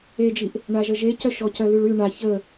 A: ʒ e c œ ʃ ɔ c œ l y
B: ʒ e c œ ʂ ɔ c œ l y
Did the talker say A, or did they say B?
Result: A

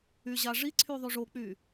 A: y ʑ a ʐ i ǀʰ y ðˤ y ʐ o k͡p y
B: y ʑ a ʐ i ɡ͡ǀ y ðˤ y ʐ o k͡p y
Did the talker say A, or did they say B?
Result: A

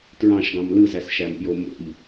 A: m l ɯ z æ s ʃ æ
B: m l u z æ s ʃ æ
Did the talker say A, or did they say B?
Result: A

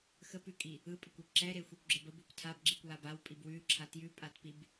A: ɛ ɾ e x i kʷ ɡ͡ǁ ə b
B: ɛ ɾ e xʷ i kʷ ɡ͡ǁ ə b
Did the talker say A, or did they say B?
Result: B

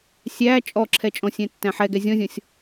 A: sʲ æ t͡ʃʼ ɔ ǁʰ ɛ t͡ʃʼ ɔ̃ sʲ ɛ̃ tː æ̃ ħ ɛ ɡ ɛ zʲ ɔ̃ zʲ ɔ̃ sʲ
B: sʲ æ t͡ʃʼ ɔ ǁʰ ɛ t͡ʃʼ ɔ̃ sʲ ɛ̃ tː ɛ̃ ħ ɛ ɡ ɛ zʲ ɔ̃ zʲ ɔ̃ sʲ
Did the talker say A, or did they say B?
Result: A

